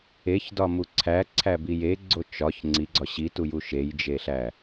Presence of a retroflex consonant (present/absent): absent